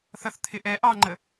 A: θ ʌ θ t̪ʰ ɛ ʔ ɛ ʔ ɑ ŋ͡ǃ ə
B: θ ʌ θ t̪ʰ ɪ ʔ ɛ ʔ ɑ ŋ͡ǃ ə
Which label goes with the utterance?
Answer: B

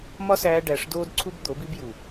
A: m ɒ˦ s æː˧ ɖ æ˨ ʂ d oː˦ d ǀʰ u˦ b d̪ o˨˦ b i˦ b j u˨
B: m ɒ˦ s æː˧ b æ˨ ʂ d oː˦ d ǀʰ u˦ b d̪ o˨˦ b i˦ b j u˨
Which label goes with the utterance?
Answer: A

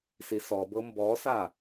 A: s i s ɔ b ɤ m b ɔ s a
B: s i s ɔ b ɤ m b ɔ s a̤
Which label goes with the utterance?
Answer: A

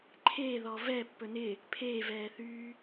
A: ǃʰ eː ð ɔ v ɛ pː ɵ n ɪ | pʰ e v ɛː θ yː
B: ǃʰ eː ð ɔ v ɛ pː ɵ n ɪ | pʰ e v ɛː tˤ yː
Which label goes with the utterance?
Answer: A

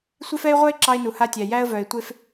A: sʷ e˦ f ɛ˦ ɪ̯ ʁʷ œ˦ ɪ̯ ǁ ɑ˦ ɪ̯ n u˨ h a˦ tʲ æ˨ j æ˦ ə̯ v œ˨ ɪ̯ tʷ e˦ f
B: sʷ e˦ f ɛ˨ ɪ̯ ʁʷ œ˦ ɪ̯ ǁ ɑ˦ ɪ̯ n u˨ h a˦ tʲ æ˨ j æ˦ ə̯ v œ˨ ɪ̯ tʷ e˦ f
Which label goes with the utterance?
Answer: A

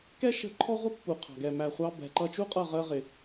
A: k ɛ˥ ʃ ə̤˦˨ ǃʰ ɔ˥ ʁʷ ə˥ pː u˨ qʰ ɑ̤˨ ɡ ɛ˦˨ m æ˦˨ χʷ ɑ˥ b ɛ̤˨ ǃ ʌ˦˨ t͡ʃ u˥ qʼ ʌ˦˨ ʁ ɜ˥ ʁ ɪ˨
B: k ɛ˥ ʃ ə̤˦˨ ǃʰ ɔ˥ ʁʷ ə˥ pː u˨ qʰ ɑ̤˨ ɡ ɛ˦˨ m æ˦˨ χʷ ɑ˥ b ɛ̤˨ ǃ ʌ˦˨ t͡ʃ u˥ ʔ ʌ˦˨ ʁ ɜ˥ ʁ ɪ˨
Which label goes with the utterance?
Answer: A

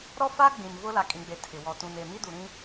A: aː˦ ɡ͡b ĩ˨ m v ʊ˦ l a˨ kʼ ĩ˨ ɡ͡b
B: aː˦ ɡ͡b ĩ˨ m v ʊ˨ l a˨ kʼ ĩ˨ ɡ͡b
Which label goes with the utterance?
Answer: A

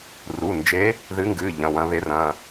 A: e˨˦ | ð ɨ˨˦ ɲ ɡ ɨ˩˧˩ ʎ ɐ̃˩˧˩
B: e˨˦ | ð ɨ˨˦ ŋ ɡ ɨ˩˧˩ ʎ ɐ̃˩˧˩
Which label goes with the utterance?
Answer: B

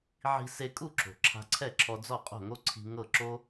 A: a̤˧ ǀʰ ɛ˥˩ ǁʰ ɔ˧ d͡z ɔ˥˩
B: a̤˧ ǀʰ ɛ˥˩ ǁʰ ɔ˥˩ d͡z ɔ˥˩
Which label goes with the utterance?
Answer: A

